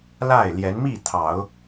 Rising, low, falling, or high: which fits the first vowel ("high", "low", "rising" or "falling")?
falling